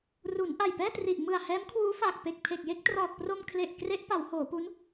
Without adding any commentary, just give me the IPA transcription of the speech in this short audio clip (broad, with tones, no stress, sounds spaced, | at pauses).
r u˩˦ n ʔ a˨˩ j p ɛː˥˩ t r i˨˩ ʔ m ɯ˨˩ a̯ h ɛː˦˥ m kʰ w uː˦˥ f aː˨˩ k̚ p e˨˩ k̚ pʰ e˨˩ k̚ j e˥˩ k̚ t r ɔː˨˩ t̚ p r o˧ m kʰ l e˨˩ ʔ k r e˦˥ ʔ p a˩˦ w h oː˩˦ p u˦˥ n